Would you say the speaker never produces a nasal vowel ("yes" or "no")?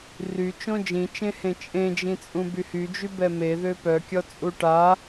no